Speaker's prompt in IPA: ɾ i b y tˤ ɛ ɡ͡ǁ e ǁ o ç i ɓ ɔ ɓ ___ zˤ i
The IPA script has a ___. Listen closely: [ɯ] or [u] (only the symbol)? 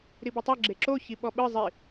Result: ɯ